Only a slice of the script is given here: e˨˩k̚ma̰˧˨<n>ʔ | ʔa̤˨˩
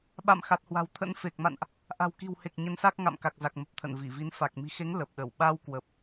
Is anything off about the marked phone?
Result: no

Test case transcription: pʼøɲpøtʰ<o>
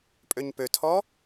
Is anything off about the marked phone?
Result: yes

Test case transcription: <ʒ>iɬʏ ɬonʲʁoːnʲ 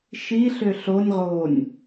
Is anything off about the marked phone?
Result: yes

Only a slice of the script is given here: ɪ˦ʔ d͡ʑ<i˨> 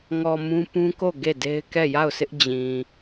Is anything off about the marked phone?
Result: yes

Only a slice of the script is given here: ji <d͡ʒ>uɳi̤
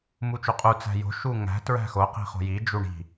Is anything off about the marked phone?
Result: no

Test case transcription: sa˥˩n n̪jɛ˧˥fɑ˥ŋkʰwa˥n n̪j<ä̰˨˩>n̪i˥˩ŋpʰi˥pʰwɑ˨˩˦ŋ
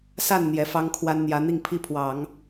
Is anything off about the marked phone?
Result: yes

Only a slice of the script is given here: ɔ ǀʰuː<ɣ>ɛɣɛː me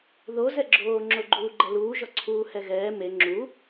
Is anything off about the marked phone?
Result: yes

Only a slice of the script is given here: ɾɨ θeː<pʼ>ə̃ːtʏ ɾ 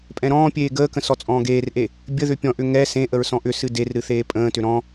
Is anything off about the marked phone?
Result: no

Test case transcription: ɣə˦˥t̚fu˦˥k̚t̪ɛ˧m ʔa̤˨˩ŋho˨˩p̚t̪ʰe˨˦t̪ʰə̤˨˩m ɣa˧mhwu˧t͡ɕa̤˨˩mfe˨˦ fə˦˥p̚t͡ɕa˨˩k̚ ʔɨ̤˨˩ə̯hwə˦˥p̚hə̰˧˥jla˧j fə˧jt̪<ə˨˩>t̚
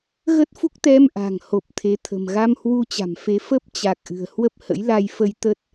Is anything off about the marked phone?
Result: yes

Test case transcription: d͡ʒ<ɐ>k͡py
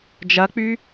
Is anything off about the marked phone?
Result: no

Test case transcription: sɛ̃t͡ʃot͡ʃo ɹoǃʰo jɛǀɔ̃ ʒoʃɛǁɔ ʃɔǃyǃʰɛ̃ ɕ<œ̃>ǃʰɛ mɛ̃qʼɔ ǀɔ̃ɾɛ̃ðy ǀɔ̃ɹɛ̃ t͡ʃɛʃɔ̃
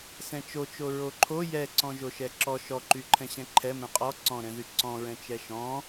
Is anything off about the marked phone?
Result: yes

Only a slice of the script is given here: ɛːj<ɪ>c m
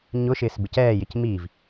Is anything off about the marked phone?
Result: no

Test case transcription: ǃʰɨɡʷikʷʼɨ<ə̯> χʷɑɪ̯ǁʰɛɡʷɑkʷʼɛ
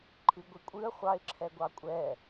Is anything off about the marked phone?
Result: no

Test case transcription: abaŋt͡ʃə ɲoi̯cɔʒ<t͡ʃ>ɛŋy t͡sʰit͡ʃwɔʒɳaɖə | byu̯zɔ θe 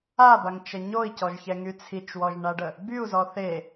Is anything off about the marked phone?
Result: yes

